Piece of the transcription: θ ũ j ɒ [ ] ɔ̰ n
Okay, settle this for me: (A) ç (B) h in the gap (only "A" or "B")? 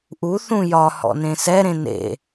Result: B